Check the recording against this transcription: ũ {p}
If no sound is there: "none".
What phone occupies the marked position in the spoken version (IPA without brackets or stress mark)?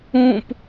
p